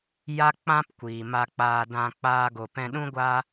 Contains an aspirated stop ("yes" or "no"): no